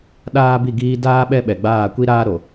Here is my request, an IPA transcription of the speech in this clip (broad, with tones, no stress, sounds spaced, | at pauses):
ɗ aː˦ b i˦˨ ɡ iː˦ d aː˦ ɓ ɛ˦ ɓ ɛ˨ ɡ͡b aː˦˨ kʷ i˦ ɾ aː˦ ɾ o˨